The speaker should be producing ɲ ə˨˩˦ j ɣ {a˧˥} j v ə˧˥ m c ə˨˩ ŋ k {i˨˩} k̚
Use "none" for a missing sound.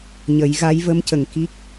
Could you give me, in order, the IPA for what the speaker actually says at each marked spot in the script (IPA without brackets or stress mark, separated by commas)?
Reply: a˧˥, i˦˥